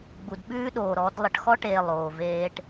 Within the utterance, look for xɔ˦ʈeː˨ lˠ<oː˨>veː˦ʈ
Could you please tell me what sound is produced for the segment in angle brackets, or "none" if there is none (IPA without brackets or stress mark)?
oː˨